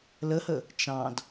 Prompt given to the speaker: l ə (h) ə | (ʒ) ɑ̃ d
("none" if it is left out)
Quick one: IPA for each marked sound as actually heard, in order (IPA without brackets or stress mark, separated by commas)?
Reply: h, t͡ʃ